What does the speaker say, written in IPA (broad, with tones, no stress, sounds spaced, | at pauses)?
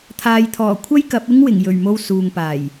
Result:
t̪ʰ aː˨ j t̪ʰ ɔː˨˩ kʷʰ ɐ˥ j k ɐ˨˥ p̚ ɪ˥ ŋ w ɪ˨˩ ŋ j ɵ˨˩ ɥ m o˧ w s uː˨ ŋ p aː˨˩ j